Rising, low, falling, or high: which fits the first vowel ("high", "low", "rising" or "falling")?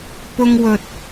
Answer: high